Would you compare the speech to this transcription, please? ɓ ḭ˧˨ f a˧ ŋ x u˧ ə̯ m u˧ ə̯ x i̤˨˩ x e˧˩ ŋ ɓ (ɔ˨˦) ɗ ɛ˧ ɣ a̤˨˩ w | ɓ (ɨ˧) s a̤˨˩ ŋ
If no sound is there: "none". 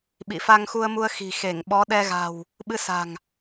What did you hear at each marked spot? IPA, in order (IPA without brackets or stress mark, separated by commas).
ɔ˨˦, ɨ˧